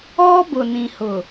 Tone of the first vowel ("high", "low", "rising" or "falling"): high